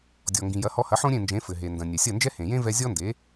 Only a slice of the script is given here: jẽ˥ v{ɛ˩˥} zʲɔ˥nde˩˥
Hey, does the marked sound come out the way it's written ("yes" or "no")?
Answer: no